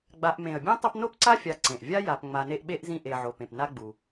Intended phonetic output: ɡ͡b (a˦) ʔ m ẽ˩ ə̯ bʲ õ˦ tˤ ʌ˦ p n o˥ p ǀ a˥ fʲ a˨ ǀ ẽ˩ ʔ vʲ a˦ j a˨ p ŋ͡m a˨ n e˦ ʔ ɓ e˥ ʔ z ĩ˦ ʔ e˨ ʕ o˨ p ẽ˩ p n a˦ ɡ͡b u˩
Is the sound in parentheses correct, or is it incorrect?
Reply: incorrect